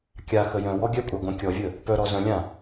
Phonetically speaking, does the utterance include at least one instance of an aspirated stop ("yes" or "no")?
no